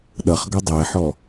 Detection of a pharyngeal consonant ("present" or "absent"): present